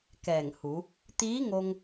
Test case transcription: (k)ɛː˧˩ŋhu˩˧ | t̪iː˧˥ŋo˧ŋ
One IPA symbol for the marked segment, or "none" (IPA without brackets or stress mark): k